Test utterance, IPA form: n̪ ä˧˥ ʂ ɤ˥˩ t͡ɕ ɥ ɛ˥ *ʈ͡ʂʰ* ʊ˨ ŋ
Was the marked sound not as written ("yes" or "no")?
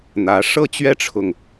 no